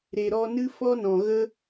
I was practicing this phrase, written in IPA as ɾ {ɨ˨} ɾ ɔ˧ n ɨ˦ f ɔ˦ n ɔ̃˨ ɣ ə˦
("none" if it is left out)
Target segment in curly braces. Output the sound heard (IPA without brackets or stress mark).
e˨